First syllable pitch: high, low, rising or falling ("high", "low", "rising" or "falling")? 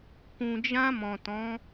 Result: low